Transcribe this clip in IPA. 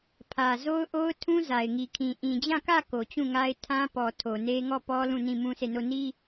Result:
pʰ ä˨ z o˦ ʊ̯ ʔ o˦ ʊ̯ tʰ ũ˦ z a˨ ɪ̯ ŋ i˨ kʰ ĩ˨ ʔ ĩ˨ d͡ʑ ã˦˨ k ä˦˨ k o˨ t͡ɕ ũ˦˨ ŋ a˦ ɪ̯ tʰ ã˦ p ɔ˨ tʰ o˨ n e˦ ŋ ɔ˦˨ p ɔ˦ l ũ˦˨ n ĩ˦˨ m ũ˦ sʰ e˦˨ n o˦˨ n i˦

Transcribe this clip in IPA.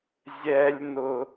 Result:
zʲ ɛ˧ lʲ n ʊ˧

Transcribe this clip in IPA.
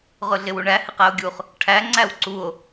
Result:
ʁ ʊ ɮ ɪ w u ɳ æ h ɪ q æ o̯ ɡʲ u χ | ʈʰ æ ŋ͡ǀ æ w ǀ u o̯

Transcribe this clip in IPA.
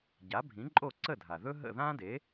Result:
ɟ a˩˥ bʱ ĩ˩˥ ǃʼ o˥˩ ǀ ə˥˩ dʱ a˩ ð ɵ˥ ɦ ə̰˥˩ ð ã˥ d e˩˥

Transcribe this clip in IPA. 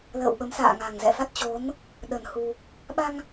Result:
l ə̰ː˧˨ w ɓ ə˨˦ m s a̰ː˧˨ ŋ a˨˩ ŋ z ɛ̰˧˨ f a˦˥ t̚ t͡ɕ o˨˦ n | ɗ ə˨˩ n h u˧ | ɓ a˧ ŋ

